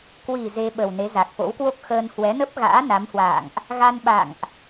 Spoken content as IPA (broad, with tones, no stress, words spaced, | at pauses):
kwi˨˩ ze˧ɓə˨˩wne˨˦ za˨˩k̚fo̰˧˥wkwo˦˥k̚ xəː˧n hwɛ˨˦nə˦˥p̚ɣa̰ː˧˥ na˨˦mhwa̰ː˧˨ŋʔ | ɣa˧nɓa̰˧˨ŋʔ